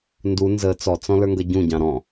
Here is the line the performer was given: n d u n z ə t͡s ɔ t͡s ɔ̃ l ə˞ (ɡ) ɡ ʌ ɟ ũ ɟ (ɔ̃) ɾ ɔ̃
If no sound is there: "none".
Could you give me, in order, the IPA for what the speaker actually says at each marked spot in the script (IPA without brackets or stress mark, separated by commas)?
ŋ, ɑ̃